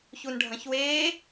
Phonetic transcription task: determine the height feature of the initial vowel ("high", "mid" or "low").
high